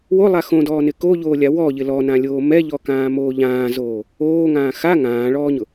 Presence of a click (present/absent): absent